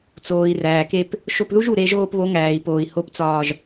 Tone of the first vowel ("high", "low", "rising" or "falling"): low